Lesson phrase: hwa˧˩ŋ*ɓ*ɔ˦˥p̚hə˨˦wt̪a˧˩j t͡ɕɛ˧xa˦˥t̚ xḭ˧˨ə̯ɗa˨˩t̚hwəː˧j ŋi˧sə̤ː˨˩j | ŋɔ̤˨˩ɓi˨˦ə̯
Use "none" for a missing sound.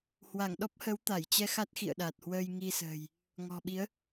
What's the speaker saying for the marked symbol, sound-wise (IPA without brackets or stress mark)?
ɗ